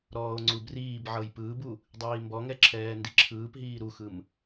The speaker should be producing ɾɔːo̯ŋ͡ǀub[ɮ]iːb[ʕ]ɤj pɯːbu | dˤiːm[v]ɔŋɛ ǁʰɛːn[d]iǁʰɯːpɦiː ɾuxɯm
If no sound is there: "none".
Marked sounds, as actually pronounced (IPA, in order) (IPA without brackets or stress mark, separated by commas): r, ʕ, b, d